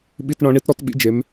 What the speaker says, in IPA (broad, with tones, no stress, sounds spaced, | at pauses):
ɓ i˧ t ɳ ɔ̃˨˦ ɳ i˦ t ɾ ɔ˦ t ɓ ḭ˦ d͡ʒ e˨˦ m